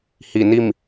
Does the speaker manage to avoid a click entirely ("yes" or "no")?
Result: yes